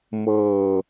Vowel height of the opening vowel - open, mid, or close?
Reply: mid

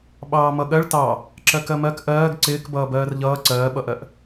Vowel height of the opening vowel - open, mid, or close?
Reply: open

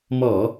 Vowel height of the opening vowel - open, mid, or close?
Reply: mid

